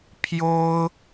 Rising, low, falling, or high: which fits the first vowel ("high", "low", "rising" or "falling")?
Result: high